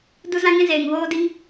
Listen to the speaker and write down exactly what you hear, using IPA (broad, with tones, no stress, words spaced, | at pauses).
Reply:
du˧zã˧ŋĩ˧ zeː˨ŋvoː˦di˦ŋ